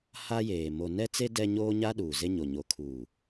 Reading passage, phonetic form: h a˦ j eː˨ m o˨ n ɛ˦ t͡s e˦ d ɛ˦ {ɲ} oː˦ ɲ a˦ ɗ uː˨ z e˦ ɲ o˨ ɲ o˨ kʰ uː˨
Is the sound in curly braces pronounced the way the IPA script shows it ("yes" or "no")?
yes